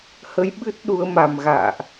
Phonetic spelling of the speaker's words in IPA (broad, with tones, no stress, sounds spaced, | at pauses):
h ə˨˦ j ɓ ɨ˦˥ t̚ ɗ u˨˦ ə̯ m a˨˩ m ɣ a̰ː˧˨ ʔ